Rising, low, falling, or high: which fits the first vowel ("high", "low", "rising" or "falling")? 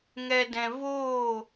low